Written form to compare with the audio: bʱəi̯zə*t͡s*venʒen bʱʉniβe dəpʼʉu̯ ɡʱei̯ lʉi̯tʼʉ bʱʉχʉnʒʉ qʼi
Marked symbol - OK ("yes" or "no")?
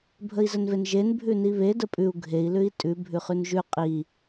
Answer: no